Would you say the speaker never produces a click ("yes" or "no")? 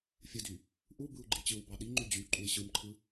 no